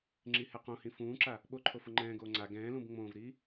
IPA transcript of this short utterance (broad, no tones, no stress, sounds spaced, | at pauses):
ŋ͡ǁ i h ɛ q õ h ĩ f ũː ǁ a | ɓ o ǃʰ o f ʊ ŋ͡ǃ ɛ̃ː ɡ oː ŋ͡ǀ a ɡ ɛ̃ː l ũ b ŋ͡m õː v ɾ iː